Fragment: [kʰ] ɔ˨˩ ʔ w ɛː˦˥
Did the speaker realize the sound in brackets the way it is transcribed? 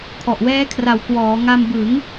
yes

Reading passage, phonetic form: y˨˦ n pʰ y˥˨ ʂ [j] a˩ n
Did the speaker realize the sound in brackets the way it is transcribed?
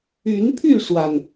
no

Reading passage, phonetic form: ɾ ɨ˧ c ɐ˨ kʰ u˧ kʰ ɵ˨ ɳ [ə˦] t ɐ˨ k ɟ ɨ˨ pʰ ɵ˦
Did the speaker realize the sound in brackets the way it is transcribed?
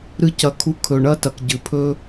no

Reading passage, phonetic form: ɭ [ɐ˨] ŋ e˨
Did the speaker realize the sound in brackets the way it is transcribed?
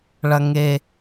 yes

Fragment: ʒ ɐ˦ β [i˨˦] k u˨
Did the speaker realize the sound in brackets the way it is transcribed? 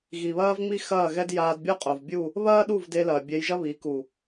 yes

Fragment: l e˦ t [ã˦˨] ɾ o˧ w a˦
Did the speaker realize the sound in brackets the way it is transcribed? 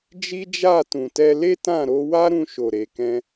yes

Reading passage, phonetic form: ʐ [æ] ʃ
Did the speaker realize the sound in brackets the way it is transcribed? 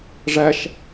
yes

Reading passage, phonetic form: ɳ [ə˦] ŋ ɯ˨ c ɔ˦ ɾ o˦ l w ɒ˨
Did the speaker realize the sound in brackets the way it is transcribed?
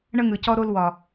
yes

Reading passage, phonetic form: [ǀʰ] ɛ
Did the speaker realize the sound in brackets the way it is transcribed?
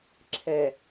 no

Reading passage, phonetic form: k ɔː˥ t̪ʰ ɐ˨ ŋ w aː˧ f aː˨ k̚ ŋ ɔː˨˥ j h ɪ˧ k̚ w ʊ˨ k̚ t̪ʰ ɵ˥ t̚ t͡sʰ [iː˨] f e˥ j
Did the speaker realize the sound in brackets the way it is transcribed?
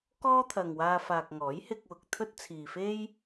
yes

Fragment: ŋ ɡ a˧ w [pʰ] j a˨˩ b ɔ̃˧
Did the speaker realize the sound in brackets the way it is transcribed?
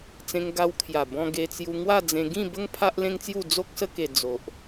no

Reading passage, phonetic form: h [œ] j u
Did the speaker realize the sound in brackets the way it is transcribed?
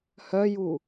yes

